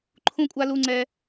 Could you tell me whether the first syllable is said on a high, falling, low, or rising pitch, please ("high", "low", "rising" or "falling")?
high